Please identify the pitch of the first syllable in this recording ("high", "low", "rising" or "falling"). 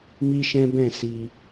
high